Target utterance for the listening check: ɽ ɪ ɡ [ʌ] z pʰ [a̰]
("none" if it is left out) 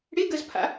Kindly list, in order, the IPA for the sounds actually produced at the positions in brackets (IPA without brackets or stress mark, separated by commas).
ə, a̰